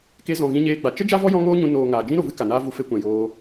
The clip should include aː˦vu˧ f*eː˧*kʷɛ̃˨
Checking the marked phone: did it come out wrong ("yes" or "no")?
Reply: yes